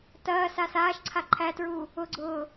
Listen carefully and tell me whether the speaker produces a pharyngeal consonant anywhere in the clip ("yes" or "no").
no